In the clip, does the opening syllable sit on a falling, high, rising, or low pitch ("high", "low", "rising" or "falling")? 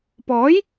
rising